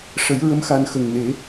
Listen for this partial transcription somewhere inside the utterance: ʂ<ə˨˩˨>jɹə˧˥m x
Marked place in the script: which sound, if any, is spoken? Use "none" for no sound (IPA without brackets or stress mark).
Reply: ə˨˩˦